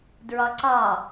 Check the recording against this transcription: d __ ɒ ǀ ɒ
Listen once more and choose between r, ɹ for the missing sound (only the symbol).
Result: ɹ